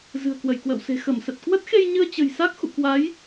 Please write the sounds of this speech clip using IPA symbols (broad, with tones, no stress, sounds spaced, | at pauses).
z ɨ̤˨˩ ə̯ k w ə˧˩ j k w ə̰ː˧˨ w s e̤˨˩ x ə˧˩ m s ə˨˩ t̚ k w ə˦˥ t̚ x e˧ j ɲ ɨ˧ ə̯ t͡ɕ ə̤˨˩ j s a˦˥ k̚ x ṵ˧˨ k w a˨˦ j